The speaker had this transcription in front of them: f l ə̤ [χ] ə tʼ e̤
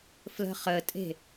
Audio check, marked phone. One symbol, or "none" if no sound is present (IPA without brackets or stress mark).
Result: χ